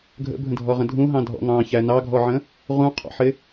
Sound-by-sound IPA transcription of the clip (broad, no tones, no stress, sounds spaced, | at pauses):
ɡʱ ə̰ bʱ ə̃ dʱ ɔ ʁ ə̃ dʱ ũ ɦ ɑ̃ dʱ ɔ̰ ŋ ɑ̃ ç æ n ɑ ɡʱ ɔ ʕ ə̃ | ʁ ũ qʰ ɔ̰ ħ ɪ